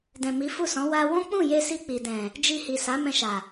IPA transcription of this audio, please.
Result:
dɛ̃˨mi˨˦fu˦˨sɔ̃˨˦ wa˧wɔ̃˦ k͡pũ˦˨je˧si˧ k͡pi˨dɛ̃˨ | d͡ʒi˧hi˨ sa˨˦mɛ̃˧ʃa˨

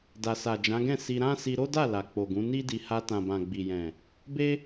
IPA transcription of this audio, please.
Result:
da˨sa˨d͡ʒã˨˦ɡɛ̃˦˨ si˧ɾã˦ si˧ɾo˦da˦˨ la˨k͡po˨ɡũ˨˦ ni˦di˧ ha˧tã˨ bã˨ɡ͡bi˨jɛ̃˨ | be˦

